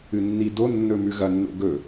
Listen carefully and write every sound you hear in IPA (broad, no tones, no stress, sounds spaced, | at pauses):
ɨ nː i d o nː ɵ m ʉ ɣ ɐ nː o̰ ɡ ɵ